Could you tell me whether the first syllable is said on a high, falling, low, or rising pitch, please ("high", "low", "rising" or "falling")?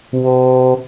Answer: high